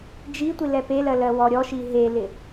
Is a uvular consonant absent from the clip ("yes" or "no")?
yes